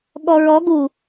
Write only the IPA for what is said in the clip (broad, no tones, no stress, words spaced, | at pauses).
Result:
ɠɔɹɔ ɡu